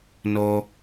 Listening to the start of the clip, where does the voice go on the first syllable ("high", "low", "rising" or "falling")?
low